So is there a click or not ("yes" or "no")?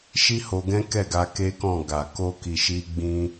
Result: no